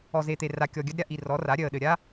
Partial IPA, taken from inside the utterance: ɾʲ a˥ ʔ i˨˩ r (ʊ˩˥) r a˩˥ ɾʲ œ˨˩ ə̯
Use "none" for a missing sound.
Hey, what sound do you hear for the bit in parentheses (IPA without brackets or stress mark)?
ɔ˩˥